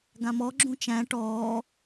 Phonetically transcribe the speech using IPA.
ɡ ã m ɔ ɡ͡ǁ ũ t͡ʃ æ̃ ʈ ɔː

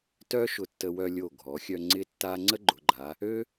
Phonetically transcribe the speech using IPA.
t œ˥ ʃ ʊ˧˩ tː ə˧ w œ˧ lʲ o˧˩ ɡʱ ɔ˩˧ xʲ œ˧ ŋ͡ǀ ɪ˥ tː a˥ ŋ͡ǀ ə˥ ɡ͡ǃ ʊ˩˧ ɡ͡ǃ a˩˧ | ø˥

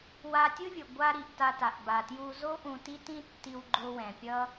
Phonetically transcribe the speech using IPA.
w a˧ tʲ ɯ˥ vʲ ɯ˩ ɡʷ a˧ ɾ i˩ ʔ t a˧ t a˩ ʔ b a˩ t j u˧ z o˥ ʔ ũ˧ t i˥ t ĩ˥ tː i˧ w ɡ͡ǃ o˧ w ɛ̃˩ pʲ ʌ˥

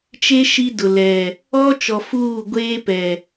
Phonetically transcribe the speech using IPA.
t͡ʃ e˦ ʃ i˦ d ʊ˨ l ɛ˨ | ɔ˦ t͡ʃ ɔ˨ f uː˦˨ ɡʷ eː˦ p ɛ˨

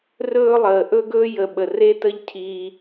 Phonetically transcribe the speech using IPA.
r ɵː˦ lˠ əː˨ ʔ ɵ˦ ɡ ɵː˦ j ə˨ ɓ ə˨ r e˦ t ə˦ ʎ cʰ i˦

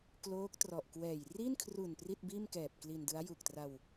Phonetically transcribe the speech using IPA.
k l oː˦˥ k̚ t r ɔ˨˩ ʔ k w ɛː˨˩ j r i˥˩ n kʰ r u˨˩ n p r i˥˩ t̚ b iː˥˩ m k ɛː˨˩ p̚ k l i˧ n d ɯ˦˥ a̯ j u˨˩ k̚ t r a˧ w

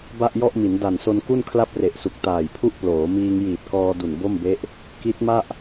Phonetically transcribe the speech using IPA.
b a˥˩ ʔ j ɔ˥˩ ʔ m i˩˦ n d a˨˩ n s o˧ n k u˥˩ n kʰ l a˥˩ p̚ r e˨˩ ʔ s u˨˩ k̚ t aː˨˩ j pʰ u˥˩ ʔ p l oː˩˦ m iː˧ ŋ j iː˨˩ t̚ k ɔː˧ d u˨˩ n b o˥˩ m b e˦˥ ʔ | k i˦˥ t̚ m a˥˩ ʔ

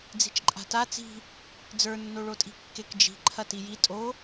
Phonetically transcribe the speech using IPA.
d͡z i̤ t͡ʃ ǃʼ a̤ t a t͡s i̤ | d͡z ə˞ nː o ɭ o tʼ i̤ kː e k d͡ʒ i̤ ǃʰ ɐ t i j i tʼ o

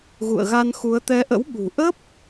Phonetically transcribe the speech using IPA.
ɣ ṵ˧˨ ə̯ ɣ a˧ n x u˨˦ ə̯ t̪ ɛ˨˦ ʔ ə̰˧˥ w ɓ ṳ˨˩ ʔ ə˦˥ p̚

